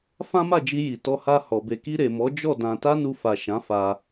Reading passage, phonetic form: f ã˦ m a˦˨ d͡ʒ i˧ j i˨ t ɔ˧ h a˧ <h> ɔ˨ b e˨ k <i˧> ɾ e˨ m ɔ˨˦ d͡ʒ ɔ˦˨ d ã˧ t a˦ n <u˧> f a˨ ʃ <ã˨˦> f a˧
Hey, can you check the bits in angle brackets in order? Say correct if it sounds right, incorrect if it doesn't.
correct, correct, correct, correct

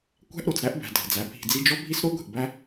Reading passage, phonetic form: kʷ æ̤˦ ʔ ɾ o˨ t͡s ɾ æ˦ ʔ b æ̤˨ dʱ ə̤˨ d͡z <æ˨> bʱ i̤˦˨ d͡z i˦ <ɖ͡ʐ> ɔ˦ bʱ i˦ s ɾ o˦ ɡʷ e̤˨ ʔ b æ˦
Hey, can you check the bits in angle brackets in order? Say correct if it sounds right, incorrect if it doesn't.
correct, incorrect

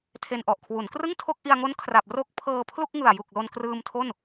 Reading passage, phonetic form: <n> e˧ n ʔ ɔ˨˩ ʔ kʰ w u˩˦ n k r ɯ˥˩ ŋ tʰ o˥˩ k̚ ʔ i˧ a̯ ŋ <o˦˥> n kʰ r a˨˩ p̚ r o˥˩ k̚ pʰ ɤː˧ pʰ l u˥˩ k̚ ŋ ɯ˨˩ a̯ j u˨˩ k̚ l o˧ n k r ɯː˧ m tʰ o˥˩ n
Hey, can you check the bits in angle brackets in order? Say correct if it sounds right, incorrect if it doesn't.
incorrect, correct

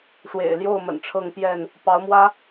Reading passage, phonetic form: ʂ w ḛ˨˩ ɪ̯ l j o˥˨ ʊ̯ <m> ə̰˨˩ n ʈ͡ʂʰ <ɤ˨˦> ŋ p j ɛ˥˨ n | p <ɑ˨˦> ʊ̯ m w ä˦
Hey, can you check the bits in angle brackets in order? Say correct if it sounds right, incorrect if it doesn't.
correct, incorrect, correct

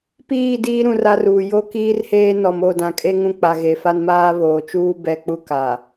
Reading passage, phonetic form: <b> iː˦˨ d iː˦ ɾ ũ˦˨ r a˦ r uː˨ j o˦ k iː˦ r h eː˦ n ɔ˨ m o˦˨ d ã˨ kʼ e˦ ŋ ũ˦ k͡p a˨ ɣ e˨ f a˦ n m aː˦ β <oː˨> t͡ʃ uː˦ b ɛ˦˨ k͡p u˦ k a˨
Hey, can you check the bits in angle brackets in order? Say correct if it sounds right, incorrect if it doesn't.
incorrect, correct

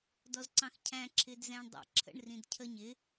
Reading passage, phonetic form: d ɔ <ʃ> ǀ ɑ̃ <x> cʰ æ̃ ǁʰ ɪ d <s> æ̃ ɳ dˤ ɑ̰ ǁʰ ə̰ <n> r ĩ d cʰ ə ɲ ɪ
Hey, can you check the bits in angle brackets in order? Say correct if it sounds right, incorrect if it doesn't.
incorrect, correct, incorrect, incorrect

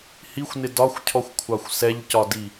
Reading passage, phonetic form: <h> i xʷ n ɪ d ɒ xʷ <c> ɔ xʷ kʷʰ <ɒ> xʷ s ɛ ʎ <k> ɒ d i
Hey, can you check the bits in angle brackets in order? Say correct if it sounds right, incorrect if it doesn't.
correct, incorrect, incorrect, incorrect

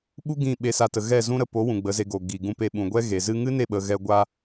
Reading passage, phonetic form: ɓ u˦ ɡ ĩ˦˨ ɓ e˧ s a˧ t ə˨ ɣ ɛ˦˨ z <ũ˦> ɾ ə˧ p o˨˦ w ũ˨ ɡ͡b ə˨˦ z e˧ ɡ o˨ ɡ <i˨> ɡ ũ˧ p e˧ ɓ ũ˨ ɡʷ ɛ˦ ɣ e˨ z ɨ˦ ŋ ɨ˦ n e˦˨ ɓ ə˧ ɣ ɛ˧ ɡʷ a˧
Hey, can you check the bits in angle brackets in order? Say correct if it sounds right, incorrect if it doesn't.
correct, correct

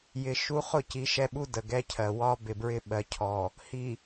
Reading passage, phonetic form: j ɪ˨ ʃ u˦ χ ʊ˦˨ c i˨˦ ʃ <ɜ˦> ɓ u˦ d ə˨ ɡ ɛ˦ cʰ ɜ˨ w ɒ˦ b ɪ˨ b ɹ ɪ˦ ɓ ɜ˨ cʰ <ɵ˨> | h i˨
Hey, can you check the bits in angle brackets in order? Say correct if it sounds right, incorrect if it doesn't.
incorrect, incorrect

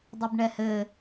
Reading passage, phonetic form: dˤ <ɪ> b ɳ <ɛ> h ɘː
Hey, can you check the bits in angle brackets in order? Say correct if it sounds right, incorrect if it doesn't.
incorrect, correct

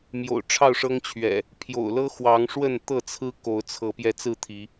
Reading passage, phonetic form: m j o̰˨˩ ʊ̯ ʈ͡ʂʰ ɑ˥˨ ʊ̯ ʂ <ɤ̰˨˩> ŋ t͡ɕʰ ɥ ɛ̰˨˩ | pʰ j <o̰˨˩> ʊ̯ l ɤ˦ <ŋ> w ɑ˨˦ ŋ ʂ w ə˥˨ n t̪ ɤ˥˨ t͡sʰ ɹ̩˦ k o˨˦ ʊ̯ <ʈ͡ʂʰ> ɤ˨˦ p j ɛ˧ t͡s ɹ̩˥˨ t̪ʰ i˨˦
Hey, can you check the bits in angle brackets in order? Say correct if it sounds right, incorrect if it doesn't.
incorrect, correct, incorrect, incorrect

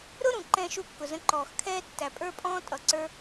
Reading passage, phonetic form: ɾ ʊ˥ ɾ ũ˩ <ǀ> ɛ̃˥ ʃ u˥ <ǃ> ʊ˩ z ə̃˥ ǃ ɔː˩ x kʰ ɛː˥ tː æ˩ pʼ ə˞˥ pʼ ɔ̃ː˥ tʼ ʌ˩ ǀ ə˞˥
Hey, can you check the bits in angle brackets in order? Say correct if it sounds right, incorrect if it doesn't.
incorrect, incorrect

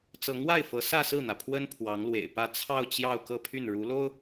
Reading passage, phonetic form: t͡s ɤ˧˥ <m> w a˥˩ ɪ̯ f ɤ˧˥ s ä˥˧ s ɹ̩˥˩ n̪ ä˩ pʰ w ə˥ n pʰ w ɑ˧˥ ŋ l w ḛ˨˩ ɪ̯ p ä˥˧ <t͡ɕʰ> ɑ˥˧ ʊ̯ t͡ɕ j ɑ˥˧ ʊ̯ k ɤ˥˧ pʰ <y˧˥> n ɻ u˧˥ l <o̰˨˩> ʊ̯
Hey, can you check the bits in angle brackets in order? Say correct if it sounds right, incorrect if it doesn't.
incorrect, incorrect, incorrect, incorrect

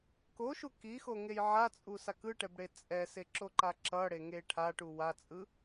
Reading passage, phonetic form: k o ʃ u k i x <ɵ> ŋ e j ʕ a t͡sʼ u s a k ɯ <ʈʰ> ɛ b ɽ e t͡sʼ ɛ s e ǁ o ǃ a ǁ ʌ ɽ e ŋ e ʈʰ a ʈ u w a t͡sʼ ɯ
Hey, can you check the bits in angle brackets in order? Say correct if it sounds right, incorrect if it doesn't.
incorrect, incorrect

